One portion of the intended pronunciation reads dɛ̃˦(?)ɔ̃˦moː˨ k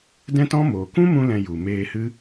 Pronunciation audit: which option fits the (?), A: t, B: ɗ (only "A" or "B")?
A